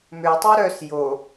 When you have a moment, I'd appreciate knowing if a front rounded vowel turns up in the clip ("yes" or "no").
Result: yes